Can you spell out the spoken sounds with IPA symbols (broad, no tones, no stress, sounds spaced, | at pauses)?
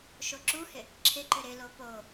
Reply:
ʃ o ǁ u h ɪ | ǁʰ ɪ ǃ ʏ ɾ ɪ l o p o